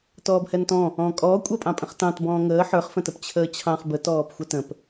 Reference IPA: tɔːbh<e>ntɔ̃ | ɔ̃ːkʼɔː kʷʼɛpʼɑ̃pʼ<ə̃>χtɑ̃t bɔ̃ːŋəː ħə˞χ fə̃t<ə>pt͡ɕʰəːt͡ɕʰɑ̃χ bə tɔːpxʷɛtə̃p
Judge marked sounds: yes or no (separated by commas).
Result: no, yes, yes